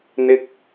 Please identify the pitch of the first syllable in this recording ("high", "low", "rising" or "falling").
high